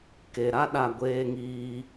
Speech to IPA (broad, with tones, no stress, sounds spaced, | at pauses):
k e˨ ɾ a˦ ɗ a˦˨ ɡʷ eː˦ ŋ iː˦